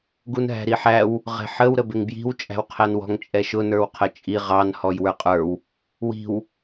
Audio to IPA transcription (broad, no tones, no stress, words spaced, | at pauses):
ɡunɦæ̤ɾiħæw | ʁɛ̤ħəw ɾəbɪŋbji̤w t͡ʃʼæ̤wqʰænwɔ̤ŋ t͡ʃʼɛʃʊ nə˞wqʰət͡ʃʼi ʁɑn hɔjwə˞qʼə˞w | wi̤w